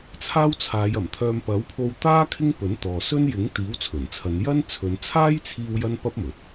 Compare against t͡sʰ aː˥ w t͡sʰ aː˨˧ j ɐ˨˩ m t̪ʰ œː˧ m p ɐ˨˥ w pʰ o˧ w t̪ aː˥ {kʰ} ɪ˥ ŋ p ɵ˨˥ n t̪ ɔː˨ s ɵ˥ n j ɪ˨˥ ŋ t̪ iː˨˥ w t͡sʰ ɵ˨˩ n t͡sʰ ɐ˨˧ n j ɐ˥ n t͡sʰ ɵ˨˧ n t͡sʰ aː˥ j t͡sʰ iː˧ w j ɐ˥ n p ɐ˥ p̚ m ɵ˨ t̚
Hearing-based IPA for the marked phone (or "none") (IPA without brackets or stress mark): kʰ